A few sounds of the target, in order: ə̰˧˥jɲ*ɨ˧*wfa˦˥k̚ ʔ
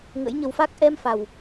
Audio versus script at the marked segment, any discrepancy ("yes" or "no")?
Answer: yes